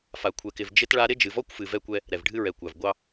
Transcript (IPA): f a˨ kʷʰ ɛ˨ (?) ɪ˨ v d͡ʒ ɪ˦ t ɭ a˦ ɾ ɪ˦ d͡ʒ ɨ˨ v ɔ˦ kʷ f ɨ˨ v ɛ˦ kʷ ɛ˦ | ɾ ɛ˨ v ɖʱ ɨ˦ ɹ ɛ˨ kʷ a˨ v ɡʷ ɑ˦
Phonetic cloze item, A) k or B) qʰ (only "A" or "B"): A